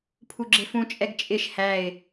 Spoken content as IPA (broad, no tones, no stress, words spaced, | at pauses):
pʰuɡ͡ǁɪfũt͡ʃʼɛɡ t͡ʃʼɪʃ hæɪ̯